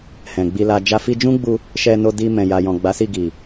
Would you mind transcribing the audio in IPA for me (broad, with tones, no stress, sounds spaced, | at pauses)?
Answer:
h ɛ̃˨ ɡ͡b i˧ l a˧ d͡ʒ a˧ f i˧ d͡ʒ ũ˦ ɡ͡b u˧ | ʃ ɛ˧ n o˧ d i˧ m ɛ̃˨ j a˨ j ɔ̃˨ ɡ͡b a˨˦ s i˦˨ ɡ i˨